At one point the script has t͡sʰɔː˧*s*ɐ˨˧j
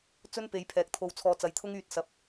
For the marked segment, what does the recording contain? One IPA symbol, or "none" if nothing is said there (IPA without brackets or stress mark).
t͡s